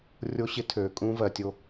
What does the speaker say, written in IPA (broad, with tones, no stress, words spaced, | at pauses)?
rʲo˦ɕɪ˦tʰøː˨ kʼũː˦vɜ˨tʲo˦